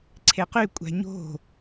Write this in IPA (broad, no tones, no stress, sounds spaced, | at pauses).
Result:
ǀʰ e q y kʷʼ æ̤ ɲ o̤